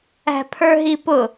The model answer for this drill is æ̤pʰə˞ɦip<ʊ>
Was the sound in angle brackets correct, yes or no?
yes